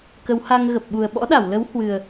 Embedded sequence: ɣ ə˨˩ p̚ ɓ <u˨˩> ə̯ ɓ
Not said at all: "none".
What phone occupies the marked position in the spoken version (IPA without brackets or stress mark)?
u˨˩